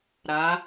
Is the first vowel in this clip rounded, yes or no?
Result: no